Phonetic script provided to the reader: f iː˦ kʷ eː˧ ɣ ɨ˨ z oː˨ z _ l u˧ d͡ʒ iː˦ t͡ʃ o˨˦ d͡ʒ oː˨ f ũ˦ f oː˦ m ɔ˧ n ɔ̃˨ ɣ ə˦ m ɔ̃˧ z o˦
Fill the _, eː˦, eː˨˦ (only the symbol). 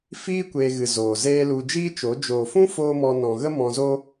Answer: eː˦